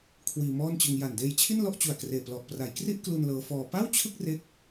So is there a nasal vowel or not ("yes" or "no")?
no